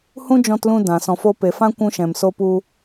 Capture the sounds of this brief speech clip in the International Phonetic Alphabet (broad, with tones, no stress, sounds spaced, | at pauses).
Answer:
h ũ˦ d͡ʒ ɔ̃˧ t l ũ˧ d ã˨ s ɔ̃˨ f o˧ p e˨ f ã˦ kʷ ũ˧ ʃ ɛ̃˨ m s o˧ p u˧